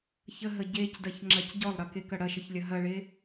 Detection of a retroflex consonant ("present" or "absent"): present